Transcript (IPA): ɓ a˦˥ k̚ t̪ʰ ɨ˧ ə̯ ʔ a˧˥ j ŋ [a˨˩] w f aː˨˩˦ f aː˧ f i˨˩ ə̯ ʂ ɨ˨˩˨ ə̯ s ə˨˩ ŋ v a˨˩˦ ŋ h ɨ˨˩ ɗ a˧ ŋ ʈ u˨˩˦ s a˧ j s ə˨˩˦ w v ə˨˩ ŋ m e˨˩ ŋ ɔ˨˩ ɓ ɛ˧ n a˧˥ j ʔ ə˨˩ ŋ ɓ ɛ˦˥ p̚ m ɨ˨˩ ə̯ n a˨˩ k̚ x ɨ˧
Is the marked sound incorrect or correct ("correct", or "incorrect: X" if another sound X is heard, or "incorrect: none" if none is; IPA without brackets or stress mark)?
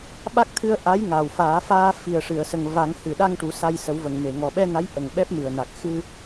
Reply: correct